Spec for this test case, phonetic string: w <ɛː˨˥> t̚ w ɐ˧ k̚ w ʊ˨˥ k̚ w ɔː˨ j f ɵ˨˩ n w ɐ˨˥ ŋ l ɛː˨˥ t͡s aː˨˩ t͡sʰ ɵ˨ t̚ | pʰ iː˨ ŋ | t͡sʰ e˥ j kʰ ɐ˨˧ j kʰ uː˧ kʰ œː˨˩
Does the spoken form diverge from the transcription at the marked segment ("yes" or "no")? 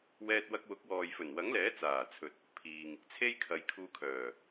yes